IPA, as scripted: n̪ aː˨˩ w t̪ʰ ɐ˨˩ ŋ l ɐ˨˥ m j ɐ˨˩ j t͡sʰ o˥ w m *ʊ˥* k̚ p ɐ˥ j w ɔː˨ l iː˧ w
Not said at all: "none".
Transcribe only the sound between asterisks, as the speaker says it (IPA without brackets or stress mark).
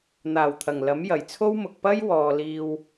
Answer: ʊ˨